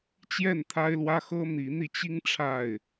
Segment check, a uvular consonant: absent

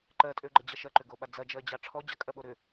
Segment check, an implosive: present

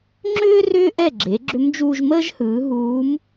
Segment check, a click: present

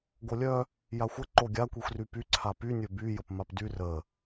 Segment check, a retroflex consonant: absent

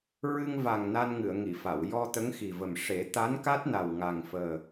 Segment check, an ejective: absent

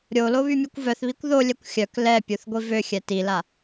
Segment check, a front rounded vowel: present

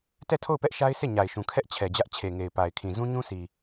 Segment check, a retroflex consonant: absent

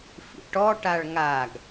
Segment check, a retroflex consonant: present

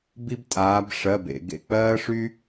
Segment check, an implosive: absent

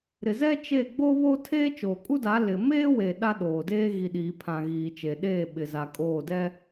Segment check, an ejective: present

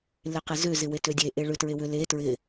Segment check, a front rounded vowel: present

